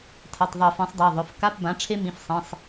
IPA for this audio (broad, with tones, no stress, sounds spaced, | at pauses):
tʰ ɐ˩˧˩ tˤ ðˤ i˧˩˧ f ĩ˩˥ sˤ dˤ a˩˧˩ ðˤ ɵ˩˧˩ f k a˧˥˧ p b ã˩˥ ʈ͡ʂʰ e˦˥ m ĩ˩˧˩ f sˤ ĩ˩˧˩ sˤ